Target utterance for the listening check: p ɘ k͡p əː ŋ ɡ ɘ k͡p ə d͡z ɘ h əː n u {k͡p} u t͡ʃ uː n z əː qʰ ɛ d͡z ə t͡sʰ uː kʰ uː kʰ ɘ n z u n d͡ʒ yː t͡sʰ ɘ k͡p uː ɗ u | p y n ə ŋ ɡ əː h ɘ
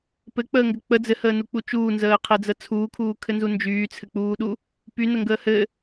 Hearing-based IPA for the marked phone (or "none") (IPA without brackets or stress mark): k͡p